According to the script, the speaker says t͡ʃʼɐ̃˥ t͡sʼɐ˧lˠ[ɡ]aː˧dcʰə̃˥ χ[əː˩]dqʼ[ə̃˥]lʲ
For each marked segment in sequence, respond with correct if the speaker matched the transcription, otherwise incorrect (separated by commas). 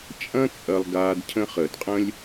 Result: correct, correct, correct